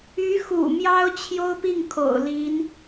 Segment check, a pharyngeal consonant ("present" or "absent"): absent